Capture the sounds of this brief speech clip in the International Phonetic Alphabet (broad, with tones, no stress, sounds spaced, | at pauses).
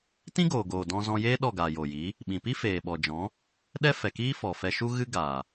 t ĩ˦ ɡ oː˨ ɡ oː˨ d ɔ̃˧ z ɔ̃˧ j eː˦ ɗ ɔ˦˨ ɡ aː˨ j o˨ j i˨˦ | ɓ ĩ˨ p i˦ f eː˨ ɓ ɔ˨ d͡ʒ ɔ̃˨˦ | ɗ ɛ˦ f ɛ˨ k iː˦ f ɔ˨ f ɛ˧ ʃ u˦ ɣ ɨ˦ ɡ aː˨